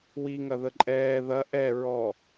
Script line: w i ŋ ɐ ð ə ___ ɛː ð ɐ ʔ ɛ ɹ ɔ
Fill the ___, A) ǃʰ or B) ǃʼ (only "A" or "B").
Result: B